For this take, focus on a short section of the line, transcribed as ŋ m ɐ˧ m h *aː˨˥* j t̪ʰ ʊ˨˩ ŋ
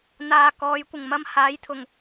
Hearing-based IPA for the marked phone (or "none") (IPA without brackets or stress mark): aː˨˥